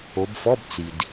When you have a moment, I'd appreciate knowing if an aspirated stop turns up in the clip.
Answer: no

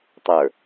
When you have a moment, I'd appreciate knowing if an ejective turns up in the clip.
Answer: no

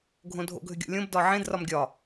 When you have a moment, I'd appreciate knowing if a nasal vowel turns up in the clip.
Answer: yes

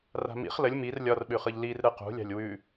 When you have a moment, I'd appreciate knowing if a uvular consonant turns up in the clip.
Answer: yes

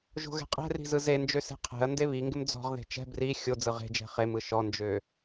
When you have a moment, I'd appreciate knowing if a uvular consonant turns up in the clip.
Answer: yes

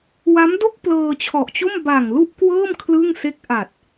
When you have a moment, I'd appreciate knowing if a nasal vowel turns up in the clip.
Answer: no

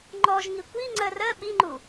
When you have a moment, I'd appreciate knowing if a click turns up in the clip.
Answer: yes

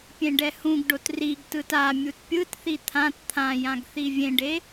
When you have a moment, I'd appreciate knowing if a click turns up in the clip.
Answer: no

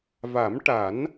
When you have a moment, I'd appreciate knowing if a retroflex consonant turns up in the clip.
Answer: yes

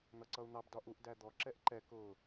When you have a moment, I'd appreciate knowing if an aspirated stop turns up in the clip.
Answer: no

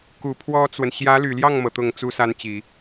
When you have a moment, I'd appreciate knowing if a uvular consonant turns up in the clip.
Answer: no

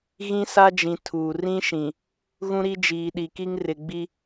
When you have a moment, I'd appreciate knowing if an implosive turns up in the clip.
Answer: yes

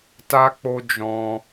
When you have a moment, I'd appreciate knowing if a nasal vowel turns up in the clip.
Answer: yes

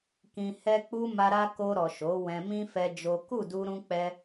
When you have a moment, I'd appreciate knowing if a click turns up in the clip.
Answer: no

